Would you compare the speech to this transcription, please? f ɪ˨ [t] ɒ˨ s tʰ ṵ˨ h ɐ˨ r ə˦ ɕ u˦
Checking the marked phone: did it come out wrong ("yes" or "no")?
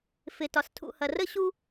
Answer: no